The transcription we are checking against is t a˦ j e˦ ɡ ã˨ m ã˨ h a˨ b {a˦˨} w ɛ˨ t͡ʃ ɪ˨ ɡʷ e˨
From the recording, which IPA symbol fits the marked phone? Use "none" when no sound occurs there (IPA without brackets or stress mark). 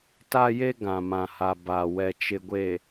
a˨